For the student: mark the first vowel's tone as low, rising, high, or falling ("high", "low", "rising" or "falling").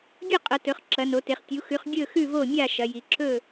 falling